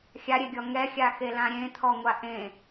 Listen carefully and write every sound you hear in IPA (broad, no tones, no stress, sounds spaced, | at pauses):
xʲ a ɾʲ e ɡʲ ɔ ŋ ɛ xʲ a x e l ã ɾʲ ẽ t̪ʰ ɔ ŋʷ a ʔ ẽ